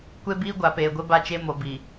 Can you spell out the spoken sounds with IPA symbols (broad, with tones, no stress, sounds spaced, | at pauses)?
kʷ e˦ b iː˦ ɡʷ a˨ p eː˨ ɡʷ ɪ˦ b a˦ t͡ʃ e˦ m o˨ b i˨